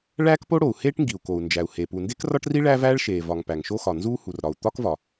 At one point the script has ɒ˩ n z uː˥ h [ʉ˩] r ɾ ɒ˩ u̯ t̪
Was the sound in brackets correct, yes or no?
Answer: no